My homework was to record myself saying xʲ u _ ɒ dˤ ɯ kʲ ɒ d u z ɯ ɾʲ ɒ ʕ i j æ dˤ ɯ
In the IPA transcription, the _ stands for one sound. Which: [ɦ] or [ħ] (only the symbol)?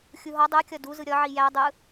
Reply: ɦ